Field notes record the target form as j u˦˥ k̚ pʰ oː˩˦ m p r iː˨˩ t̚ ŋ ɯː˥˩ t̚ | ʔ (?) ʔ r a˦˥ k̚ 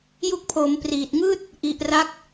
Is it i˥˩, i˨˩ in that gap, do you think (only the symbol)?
i˨˩